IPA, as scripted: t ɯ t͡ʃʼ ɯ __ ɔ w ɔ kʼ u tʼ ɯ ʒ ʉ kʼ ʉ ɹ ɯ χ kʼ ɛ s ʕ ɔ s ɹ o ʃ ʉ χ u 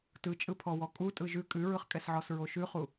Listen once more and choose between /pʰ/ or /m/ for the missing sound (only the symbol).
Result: pʰ